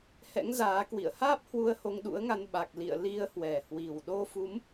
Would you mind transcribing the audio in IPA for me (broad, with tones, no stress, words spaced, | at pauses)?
hɛ̰˧˥ŋzaː˨˦ kwḭ˧˨ə̯haː˦˥p̚ hwu˧ə̯ho˧ŋɗṵ˧˥ə̯ŋa˧n ɓa˨˩k̚lḭ˧˨ə̯ li˧ə̯hwɛ˨˩ hwi˨˩w ɗo˧fu˨˦m